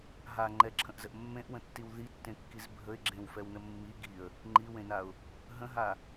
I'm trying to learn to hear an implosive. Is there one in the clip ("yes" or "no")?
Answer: no